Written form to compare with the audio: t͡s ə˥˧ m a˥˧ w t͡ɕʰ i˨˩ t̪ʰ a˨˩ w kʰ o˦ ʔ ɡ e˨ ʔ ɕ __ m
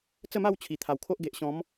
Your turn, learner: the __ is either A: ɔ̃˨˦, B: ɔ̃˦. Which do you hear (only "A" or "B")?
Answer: A